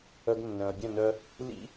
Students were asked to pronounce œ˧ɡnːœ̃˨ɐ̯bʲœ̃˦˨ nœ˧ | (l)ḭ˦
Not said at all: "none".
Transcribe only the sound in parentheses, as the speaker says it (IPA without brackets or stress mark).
l